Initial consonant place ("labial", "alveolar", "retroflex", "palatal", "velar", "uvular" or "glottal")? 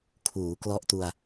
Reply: velar